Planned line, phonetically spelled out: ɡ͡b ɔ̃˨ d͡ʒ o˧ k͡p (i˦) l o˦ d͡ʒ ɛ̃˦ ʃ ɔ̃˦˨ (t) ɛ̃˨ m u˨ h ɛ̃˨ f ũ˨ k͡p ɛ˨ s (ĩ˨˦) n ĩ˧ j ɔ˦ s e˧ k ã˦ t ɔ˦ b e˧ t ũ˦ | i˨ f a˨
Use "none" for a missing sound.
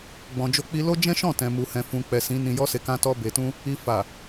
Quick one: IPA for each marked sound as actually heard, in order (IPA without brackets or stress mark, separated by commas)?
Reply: i˧, t, ĩ˨˦